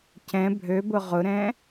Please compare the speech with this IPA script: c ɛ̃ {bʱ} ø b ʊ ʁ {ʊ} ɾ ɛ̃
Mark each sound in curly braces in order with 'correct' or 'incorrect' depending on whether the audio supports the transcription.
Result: correct, correct

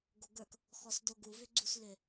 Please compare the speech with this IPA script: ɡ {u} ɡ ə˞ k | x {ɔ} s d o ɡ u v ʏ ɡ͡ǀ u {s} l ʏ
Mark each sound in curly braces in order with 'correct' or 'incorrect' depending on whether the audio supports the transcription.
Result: incorrect, correct, correct

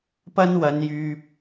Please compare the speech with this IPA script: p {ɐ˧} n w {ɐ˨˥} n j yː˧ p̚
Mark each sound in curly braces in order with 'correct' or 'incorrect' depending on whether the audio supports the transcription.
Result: incorrect, incorrect

